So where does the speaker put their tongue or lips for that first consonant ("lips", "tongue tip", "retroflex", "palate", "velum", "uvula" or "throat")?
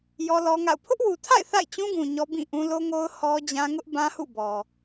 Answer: palate